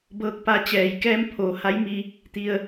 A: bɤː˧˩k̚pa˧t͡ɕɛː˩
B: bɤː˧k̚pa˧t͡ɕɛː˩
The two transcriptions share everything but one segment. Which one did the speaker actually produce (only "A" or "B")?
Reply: B